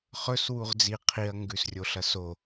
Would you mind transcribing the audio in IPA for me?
χ ɵ s w u ʁ d͡z i qʰ i ɐ̯ ŋ ɡ ʉ s rʲ o ɬ ɐ s o

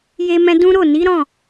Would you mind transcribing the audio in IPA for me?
j e˦ m ɛ̃˦ d ũ˦ ɾ o˦˨ n i˨˦ ɾ ɔ̃˦˨

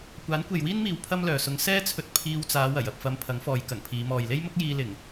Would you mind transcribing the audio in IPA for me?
kʷ aː˨˥ n kʷ e˨ j w iː˥ n m iː˨ w pʰ ɐ˥ m l œː˨ s ʊ˧ ŋ s ɛː˥ t͡sʰ ɵ˧ t̚ pʰ iː˧ w t͡s aː˨˧ w ɐ˨˩ j ɐ˨ p̚ f ɐ˧ m pʰ ɐ˨˥ ŋ f ɔː˨˧ j k ɐ˨˩ ŋ pʰ iː˨˧ m ɔː˨ j l e˥ j m ʊ˥ k̚ j iː˧ l ɪ˨˩ ŋ

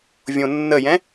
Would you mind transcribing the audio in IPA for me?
vʲ õ nː ə j ɛ̃

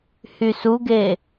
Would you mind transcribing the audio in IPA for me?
h y s u ɡ e

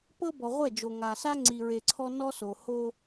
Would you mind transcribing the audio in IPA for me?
p ɤ˦ b ɔ˨ ʁʷ ɛ˦˨ d͡ʒ o˨ ŋ a˨ s a˦ ŋ͡ǀ i˨ ɹ e˨ ǀʰ ɔ˦ n ɔ˦ s o˨ h o˦

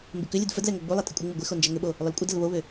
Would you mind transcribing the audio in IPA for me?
m b ɪ k ʏ lʲ ə d f ə d l ɛ ŋ o ɡ͡b u lˠ ɛ tʼ ə kʷʼ ɪ ŋ͡m ɪ ɡʷ ɪ x o n d͡ʒ ɛ ŋ ʏ ɓ o | lˠ ʏ l kʷʼ ə d ə l β o β ʏ

